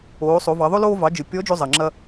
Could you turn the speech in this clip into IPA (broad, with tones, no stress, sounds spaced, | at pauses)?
oː˩˧ sˤ o˩˧ v ɑ˩˧ ðˤ o˥ l oː˧ v ɑ˩˧ d͡ʒ ɯ˩ pʲ ɔ˧˥ d͡ʒ o˧ zˤ ɐ˩ ŋ͡ǁ ɐ˧